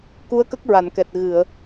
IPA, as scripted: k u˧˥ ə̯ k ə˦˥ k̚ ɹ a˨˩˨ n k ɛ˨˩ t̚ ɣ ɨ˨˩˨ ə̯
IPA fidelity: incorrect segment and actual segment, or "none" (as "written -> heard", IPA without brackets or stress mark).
none